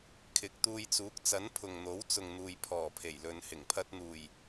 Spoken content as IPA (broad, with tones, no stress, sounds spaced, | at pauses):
kʰ ɪ˨˥ k̚ t̪ uː˧ j t͡s uː˨˥ k̚ t͡s ɐ˨˥ n pʰ ʊ˨ ŋ n̪ o˨˥ w t͡s ʊ˨ ŋ n̪ uː˨ j pʰ ɔː˨˩ pʰ e˨˩ j l ɵ˨ n h ɪ˨˩ ŋ pʰ ɐ˧ t̚ n̪ uː˨˩ j